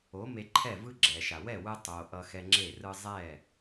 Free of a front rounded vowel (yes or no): yes